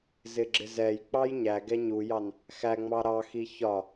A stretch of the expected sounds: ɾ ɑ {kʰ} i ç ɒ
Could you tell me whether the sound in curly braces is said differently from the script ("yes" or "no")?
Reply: yes